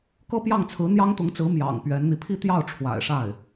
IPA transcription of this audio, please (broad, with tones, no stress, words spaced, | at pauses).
kɤ˥pjɑ˥˩ŋt͡sʰɹ̩˧˥ n̪jɑ˥ŋt̪ʊ˧˥ŋt͡sɹ̩˧˥ mjɑ̰˨˩ŋ pɥɛ˧˥nn̪i˧ pʰi˥˧t̪jɑ˥˩ʊ̯ʈ͡ʂʰwa̰˨˩ɪ̯ʂa˥˩ɪ̯